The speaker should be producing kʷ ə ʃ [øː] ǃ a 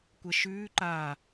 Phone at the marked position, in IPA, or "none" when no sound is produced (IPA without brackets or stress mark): ʉː